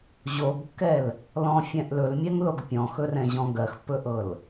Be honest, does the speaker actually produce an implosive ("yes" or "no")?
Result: no